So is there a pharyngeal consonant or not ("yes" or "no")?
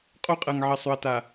yes